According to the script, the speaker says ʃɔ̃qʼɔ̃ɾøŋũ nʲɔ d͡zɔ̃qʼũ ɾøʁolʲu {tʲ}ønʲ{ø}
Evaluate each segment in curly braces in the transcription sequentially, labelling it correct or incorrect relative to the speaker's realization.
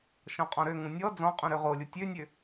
correct, correct

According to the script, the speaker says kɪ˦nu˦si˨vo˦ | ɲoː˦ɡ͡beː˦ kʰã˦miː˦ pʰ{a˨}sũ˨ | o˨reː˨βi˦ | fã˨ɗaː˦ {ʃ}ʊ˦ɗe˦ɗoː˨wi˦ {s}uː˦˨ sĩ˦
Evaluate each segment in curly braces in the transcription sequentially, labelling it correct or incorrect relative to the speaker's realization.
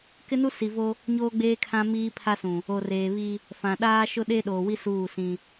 incorrect: a˦, correct, correct

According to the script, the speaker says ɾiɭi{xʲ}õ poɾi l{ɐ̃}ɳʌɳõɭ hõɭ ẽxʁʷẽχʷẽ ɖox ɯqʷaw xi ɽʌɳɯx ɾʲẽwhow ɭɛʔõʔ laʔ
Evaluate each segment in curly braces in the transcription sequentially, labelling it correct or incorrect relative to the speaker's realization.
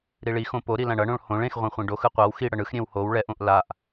incorrect: x, incorrect: ã

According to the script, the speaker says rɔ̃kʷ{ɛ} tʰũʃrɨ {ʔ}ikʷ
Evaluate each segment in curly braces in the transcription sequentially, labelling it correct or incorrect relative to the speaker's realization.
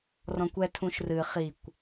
correct, incorrect: χ

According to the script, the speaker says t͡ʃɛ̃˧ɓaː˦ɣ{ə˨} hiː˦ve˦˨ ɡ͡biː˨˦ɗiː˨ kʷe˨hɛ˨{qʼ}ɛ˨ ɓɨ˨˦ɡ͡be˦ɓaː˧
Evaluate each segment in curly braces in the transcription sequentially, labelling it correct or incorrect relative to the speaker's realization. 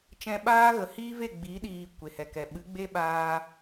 correct, incorrect: k

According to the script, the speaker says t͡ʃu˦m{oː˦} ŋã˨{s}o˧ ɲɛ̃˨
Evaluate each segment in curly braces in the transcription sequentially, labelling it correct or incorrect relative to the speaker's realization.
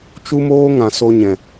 correct, correct

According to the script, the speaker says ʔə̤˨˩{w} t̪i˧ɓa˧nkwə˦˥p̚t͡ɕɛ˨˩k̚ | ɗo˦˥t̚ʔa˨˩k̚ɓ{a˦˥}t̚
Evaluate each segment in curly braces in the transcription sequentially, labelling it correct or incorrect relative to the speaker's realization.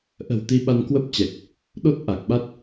correct, correct

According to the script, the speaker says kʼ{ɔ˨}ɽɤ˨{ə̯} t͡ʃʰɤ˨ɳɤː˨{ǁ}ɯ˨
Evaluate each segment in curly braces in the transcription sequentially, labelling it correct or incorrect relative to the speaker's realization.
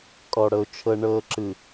correct, incorrect: ʊ̯, correct

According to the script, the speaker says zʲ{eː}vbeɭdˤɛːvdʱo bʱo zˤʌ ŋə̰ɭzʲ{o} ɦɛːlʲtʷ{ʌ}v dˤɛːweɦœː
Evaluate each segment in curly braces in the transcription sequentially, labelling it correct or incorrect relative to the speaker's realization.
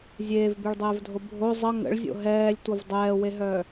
correct, incorrect: o̰, correct

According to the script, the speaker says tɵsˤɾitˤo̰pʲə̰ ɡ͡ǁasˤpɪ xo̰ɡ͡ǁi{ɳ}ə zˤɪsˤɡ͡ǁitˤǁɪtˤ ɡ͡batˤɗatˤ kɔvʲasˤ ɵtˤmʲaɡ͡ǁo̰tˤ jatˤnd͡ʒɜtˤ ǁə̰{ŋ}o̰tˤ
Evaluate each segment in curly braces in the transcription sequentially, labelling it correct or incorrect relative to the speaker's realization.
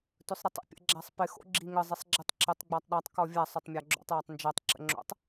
incorrect: ŋ, incorrect: ŋ͡ǁ

